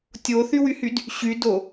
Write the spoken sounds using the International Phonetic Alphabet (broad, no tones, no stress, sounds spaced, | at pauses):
tʲ o θ y w y h y d | ɕ y d o